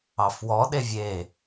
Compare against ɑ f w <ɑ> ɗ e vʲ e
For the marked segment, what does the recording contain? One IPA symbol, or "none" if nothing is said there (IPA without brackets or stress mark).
ɔ